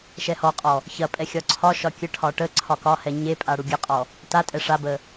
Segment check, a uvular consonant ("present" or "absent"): present